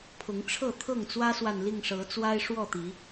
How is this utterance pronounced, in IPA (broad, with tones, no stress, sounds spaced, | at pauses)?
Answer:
pʰ ʊ˨˦ ŋ ʈ͡ʂʰ ɤ˥˨ t̪ʰ ɤ˥˨ ŋ t͡s w ä˦ s w a˨ n l i˥˨ ŋ ʂ ɤ˨˦ t͡s w a˦ ɪ̯ ʂ w ɔ˥˨ t̪ i˨˦